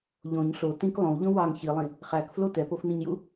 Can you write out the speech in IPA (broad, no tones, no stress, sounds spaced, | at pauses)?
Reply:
ʎ õ ɲ ɬ o t ĩ k lˠ õ w ʎ õ w ɑ ŋ ç i lˠ ĩ | χ æ k f l o t ɛ p o f n ĩ ɲ j u